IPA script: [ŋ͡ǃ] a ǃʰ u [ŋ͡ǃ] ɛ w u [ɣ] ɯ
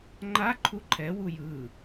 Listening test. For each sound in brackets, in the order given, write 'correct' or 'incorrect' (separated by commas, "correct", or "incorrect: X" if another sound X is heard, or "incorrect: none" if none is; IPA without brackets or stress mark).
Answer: correct, incorrect: ǃʰ, incorrect: j